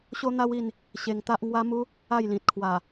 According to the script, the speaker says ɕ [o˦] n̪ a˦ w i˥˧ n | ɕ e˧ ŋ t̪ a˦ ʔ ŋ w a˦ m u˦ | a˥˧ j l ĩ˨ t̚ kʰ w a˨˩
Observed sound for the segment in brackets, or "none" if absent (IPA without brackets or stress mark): o˦